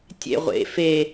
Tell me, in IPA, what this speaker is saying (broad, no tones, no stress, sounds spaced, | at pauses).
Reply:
tʲ ḛ ʁʷ ḛ f e